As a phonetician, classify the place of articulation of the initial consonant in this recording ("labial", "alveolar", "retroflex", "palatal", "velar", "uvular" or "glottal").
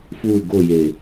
labial